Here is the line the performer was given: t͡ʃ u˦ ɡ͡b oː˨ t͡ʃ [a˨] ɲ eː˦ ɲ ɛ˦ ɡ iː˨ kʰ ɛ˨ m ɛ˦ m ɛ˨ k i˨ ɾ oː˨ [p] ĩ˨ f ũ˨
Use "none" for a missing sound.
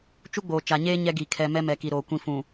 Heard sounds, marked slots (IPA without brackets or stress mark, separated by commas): a˨, kʷ